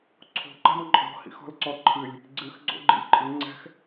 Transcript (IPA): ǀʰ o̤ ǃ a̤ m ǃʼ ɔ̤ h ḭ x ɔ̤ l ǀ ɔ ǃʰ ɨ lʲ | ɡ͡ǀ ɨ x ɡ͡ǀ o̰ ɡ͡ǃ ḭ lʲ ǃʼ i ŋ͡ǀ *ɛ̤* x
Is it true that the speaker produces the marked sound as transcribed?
yes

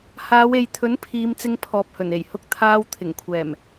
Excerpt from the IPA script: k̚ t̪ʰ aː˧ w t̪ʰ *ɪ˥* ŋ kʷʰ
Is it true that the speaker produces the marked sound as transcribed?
no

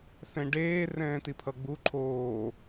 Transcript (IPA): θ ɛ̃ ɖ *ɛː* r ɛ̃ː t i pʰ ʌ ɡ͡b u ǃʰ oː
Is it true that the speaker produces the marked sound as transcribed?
no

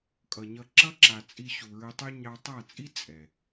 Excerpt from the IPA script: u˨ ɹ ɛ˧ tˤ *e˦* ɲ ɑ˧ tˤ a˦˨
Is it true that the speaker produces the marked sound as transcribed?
no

